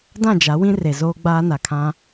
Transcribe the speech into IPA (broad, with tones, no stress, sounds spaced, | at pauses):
d ã˦˨ d͡ʒ a˨˦ w ĩ˦ r e˨ z oː˦ ɡ͡b aː˦ n a˨ kʰ ã˦